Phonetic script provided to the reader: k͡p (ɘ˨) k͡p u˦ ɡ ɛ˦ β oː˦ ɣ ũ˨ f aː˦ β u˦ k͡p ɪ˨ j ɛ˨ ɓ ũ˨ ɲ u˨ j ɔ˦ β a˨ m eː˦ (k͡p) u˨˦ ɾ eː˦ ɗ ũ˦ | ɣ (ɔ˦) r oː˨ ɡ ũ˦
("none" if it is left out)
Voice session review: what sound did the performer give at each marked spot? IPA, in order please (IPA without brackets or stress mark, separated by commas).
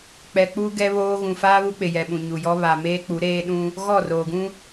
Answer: ɛ˨, k͡p, ɔ˦˨